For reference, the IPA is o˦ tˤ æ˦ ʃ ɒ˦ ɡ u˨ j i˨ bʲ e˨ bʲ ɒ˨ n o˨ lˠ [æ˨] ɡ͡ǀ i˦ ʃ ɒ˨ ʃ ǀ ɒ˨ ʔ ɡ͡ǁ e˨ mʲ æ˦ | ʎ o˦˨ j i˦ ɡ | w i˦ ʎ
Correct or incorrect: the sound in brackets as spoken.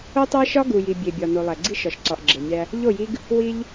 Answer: correct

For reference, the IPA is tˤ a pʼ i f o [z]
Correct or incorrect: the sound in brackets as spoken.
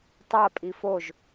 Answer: incorrect: ʒ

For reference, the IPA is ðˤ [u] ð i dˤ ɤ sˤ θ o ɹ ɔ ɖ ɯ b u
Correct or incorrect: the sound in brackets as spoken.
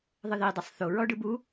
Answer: incorrect: ɯ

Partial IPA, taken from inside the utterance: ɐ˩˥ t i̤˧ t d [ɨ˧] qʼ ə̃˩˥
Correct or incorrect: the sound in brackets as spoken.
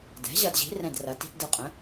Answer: correct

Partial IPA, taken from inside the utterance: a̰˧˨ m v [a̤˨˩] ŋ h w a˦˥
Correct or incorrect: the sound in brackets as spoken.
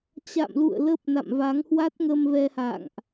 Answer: incorrect: a˨˦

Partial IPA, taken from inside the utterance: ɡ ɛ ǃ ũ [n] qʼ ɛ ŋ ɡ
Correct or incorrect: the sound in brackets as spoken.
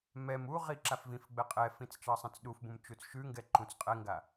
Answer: incorrect: t͡s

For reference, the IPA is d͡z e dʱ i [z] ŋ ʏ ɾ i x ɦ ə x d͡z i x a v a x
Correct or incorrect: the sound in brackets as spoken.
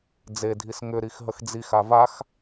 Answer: incorrect: s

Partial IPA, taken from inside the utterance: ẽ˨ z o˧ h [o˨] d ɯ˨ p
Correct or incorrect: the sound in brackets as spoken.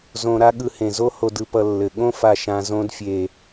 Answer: correct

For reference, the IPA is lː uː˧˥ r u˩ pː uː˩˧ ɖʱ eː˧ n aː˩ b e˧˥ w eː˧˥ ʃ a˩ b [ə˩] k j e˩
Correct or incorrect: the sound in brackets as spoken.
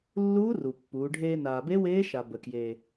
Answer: correct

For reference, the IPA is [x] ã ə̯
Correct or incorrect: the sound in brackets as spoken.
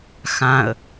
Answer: correct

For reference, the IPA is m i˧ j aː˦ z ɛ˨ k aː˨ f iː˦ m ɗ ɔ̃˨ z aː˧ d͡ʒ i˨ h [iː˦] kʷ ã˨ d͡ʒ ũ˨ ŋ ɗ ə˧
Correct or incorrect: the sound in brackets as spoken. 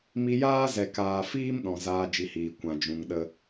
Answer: incorrect: iː˨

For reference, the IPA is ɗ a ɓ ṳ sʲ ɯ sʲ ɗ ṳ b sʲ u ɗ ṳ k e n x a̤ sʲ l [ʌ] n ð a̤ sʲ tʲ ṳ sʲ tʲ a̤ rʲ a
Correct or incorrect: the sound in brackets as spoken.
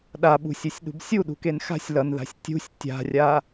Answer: correct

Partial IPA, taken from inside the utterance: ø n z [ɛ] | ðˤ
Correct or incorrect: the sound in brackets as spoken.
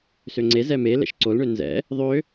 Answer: incorrect: ɛ̰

